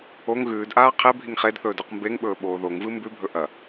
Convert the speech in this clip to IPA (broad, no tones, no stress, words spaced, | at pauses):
oŋ ɣʉːdʔaː qʰebʱiŋ χedθɵːd ʉqmbeŋɓɵː ɓoːðoŋvɨ mbʉbʱɵ ʔɐ